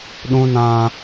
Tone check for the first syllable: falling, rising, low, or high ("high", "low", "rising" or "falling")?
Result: high